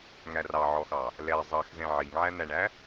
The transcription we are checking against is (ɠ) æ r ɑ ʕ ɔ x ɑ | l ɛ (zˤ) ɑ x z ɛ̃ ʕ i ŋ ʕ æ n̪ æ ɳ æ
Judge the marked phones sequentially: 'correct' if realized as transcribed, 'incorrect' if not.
incorrect: ŋ, correct

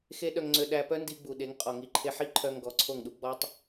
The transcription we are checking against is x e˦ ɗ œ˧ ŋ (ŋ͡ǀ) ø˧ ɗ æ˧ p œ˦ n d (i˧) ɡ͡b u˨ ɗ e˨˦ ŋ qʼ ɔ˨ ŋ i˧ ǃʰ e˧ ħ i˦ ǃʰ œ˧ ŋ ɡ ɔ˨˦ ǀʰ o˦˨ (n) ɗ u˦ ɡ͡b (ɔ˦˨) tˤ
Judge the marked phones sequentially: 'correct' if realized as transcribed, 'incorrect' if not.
correct, correct, incorrect: ŋ, incorrect: ɔ˦

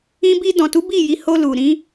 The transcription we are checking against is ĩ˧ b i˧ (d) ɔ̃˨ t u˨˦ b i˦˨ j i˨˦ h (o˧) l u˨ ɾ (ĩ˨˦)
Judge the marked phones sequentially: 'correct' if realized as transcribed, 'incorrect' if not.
correct, correct, correct

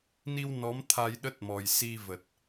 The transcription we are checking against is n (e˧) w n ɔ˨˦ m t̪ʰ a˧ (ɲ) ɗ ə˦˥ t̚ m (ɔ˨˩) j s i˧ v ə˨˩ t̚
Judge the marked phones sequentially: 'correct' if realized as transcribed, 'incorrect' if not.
incorrect: i˧, incorrect: j, correct

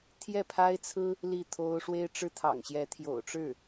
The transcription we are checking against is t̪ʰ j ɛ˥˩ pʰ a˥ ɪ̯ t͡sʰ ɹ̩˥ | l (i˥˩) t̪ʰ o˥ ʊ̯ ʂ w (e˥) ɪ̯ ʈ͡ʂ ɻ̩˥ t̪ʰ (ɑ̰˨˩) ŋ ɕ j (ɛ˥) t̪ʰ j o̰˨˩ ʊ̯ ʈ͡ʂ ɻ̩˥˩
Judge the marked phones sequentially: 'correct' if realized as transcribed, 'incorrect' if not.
correct, correct, correct, incorrect: ɛ˧˥

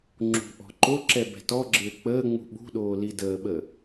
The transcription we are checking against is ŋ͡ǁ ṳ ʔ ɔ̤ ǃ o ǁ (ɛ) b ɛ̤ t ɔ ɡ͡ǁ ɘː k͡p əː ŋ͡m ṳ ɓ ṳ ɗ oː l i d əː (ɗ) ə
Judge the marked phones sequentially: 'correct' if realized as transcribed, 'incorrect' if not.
correct, incorrect: ɓ

